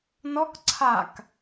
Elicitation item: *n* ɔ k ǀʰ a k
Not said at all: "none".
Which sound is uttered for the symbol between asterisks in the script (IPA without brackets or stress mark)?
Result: n